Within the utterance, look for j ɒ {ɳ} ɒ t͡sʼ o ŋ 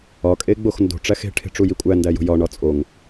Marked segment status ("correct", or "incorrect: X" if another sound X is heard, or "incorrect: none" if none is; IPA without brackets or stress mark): correct